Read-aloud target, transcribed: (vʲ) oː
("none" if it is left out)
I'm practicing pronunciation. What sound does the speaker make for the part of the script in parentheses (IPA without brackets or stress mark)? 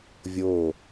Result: vʲ